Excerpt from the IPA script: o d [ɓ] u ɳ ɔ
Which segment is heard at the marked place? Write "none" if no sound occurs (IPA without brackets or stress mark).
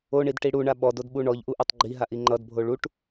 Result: ɓ